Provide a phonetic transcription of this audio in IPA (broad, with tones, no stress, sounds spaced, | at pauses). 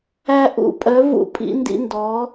æ˥ ʔ ṵ˥˧ pʼ œ˧˥ v ṵ˥˩ pʼ ḭ˥ n d ḭ˥ n d ɔ˧˥